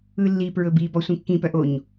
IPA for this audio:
ɯ lː i p ɹ ɵ b i b ɔ sʷ ĩ kː ĩ p œ ʔ o ɲ

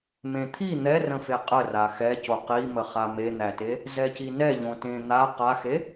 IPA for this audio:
m ẽ t̪ʰ i n̪ ɛ r ə̃ f e qʼ ə r a x ɛ c o q i m ə χ a m e n̪ æ t e | z ɛ c i n ɛ ʎ õ t ẽ n̪ a q a x e

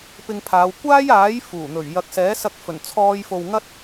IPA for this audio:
p ɪ˧ ŋ pʰ aː˨˧ w kʷ aː˥ j aː˨˥ j f uː˨˩ n̪ ɵ˨˩ ɥ j ɐ˨ k̚ s ɛː˨˥ s ɐ˧ k̚ f ɵ˨˩ n t͡sʰ ɔː˧ j f o˨ w ŋ ɐ˥ t̚

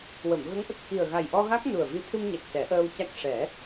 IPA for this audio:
w ə˨˩˨ m ɣ ə˧˥ ŋ ʔ ə˨˩ k̚ x i˨˩ ə̯ ɣ a˨˩ j ʔ ɔ˧ ɣ a˦˥ k̚ n u˨˩ ə̯ v i˧˥ t̪ʰ ɨ˧ m ɲ a˨˩ k̚ s ɛ˨˩˦ ʔ əː˧ w c a˦˥ k̚ ʂ ɛ˨˩˦

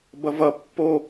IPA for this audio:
b ʌ v ʌ pː o

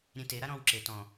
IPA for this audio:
ɾʲ ẽ t e ɾ a ɾ ɔ̃ː w ǁ e t ɔ̃

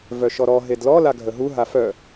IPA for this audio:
v œ ʃ ɔ ɾ ɔ ɦ e d l ɔ l a ɡʱ ə ɦ u ɦ a f œ

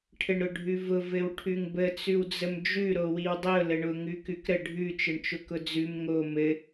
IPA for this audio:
ʈʰ ɘ ɳ ɾ ʊ ɖʱ ʉ v ʊ v ɘ w ʈʰ ʉ ŋ b ə t͡s ʉ w d͡z ə m d͡ʒ ʉ ɾ o w i w dˤ ʊ l ə ɳ ʊ ŋ ʉ k ʉ k ɾ ə ɖʱ ʉ t͡ʃ ɘ ɳ t͡ʃ ʊ k ʊ d͡z ʉ m ŋ o m ɘ

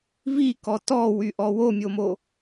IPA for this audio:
v i k ɔ t ɔ w y ʔ ɔ w o mʲ o m o

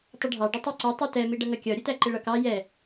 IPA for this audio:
tˤ ə ɖʱ ɑ ɖ ɔ tˤ ɜ ǀ ɔ tˤ i t ɛ m i ɖ ʌ ŋ ʌ kʲ ɒ ɾʲ ʊ t æ ǃ ɪ ɭ ʌ k ɑ j ɛ

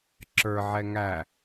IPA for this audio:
ǁ ə˞ ʕ ɛ ŋ æ

